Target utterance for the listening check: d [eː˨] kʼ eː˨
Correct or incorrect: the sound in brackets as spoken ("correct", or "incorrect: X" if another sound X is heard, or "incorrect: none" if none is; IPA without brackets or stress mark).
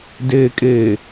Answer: correct